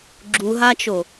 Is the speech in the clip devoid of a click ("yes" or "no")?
no